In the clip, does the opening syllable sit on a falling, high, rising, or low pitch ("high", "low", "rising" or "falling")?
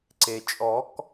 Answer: low